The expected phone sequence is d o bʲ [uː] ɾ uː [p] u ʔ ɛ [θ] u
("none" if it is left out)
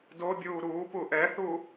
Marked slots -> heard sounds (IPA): uː, p, θ

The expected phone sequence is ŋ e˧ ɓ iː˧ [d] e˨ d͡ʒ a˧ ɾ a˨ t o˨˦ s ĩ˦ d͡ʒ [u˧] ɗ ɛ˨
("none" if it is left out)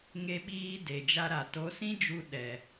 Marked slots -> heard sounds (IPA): d, u˧

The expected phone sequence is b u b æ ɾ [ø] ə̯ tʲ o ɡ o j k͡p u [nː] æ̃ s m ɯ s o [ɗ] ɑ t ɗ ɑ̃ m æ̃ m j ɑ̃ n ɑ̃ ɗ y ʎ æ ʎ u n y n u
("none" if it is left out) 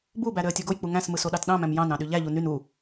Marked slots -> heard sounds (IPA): ø, ŋ, ɗ

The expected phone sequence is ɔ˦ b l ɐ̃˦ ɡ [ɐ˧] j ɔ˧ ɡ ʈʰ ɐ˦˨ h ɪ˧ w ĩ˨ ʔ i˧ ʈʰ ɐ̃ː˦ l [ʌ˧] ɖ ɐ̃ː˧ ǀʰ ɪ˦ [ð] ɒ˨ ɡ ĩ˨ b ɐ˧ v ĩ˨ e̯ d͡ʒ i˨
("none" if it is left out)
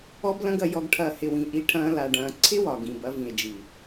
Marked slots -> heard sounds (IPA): ɐ˧, a˧, w

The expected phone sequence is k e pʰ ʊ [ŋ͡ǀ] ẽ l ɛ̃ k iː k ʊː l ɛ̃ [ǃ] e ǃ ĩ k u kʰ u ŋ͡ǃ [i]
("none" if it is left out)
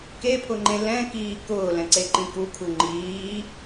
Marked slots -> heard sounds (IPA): ŋ͡ǃ, ǀ, iː

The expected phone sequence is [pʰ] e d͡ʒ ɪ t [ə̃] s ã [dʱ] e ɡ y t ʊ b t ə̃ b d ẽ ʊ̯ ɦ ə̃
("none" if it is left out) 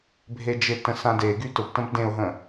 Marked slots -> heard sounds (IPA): bʱ, ə̃, d

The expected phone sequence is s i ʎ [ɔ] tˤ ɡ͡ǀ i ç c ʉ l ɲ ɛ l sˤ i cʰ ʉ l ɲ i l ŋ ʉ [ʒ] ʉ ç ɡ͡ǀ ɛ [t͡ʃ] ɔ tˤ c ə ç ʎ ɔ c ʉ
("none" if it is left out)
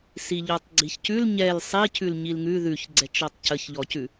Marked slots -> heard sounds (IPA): ɔ, ð, t͡ʃ

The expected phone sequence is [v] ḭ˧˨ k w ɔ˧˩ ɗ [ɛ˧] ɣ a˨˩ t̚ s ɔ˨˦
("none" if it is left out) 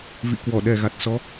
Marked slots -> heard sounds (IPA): v, ɛ˨˩

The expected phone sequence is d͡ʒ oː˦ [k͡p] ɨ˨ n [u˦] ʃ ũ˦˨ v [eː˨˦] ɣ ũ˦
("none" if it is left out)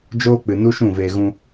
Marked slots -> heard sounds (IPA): k͡p, u˦, eː˧

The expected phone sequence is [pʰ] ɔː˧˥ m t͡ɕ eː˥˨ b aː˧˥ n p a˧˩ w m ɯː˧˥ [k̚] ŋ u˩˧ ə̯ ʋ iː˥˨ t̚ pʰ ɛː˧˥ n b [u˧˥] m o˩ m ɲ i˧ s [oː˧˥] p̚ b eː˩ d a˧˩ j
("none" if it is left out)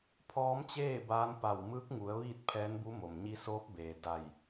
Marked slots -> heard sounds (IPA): pʰ, k̚, u˧˥, oː˧˥

